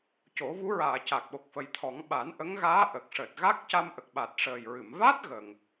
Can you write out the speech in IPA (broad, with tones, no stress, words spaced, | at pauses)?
co˨˩˦vu˧˥ɹaː˨˩˨ ca˨˩k̚ɓo˨˩k̚fə˨˩jt̪ʰɔ˨˩˦ŋ ɓa˨˩˦nʔə˧˥ŋɣaː˧˥ ʔə˨˩k̚ʂəː˨˩t̚ ɣa˦˥k̚ca˧mʔə˨˩k̚ɓa˨˩t̚ ʂəː˨˩jɹɨ˨˩˨m va˦˥t̚ ɣə˨˩ŋ